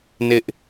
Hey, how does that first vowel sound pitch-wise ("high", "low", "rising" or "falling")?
high